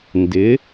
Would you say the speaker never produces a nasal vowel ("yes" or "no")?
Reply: yes